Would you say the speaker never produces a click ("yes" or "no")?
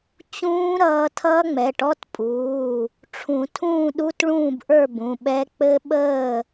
yes